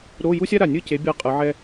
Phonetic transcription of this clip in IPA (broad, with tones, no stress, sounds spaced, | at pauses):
ɾ o˧˥˧ j u˥ sʲ a˥ ɾ a˨˩ nʲ ɯ˥˨ c e˨˦ bʲ a˥˨ qʼ ɯ˨˦ ʕ ɛ˥